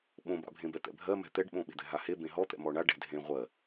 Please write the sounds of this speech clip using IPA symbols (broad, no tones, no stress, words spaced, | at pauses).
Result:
ɓõba̰ bʱẽbɛt̪ɛ̰bʱɜ mɛ̤t̪ɛɖɓõ ɓe̤d̪ɛ̤ɦahe bẽɦɔt̪ɛ̰ mɔɳa ɖɛ̤dʱẽ ʁʷɜ